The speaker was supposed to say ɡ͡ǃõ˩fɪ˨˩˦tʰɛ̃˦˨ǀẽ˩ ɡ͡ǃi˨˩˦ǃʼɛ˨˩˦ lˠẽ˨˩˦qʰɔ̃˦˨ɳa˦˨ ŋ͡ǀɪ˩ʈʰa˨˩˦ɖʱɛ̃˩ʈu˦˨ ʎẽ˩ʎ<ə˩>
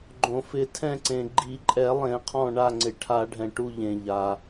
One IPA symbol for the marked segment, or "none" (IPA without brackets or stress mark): a˩